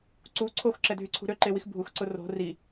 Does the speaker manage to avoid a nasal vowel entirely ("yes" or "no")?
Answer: yes